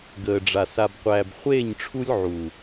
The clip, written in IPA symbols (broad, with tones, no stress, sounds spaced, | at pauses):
ɡ əː˨ ɖ͡ʐ a˨ s a˨ b qʷ æː˨ b χʷ eː˦˨ ɲ ʈ͡ʂʰ u˦ lʲ ʕ u˨